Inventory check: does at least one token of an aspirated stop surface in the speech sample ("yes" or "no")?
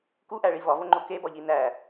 no